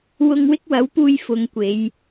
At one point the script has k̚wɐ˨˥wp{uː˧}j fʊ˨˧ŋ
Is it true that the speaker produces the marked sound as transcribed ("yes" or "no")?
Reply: yes